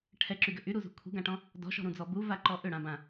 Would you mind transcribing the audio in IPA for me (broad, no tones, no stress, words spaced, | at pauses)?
ʈʰɛǁyɡʏ ʔyɾuzṳ kʷʰi̤ɡãʈɔ̃ | dɔ̤ʃɔ̤ɾũd͡zɔ buvaǃɔ ʔʏɽãbã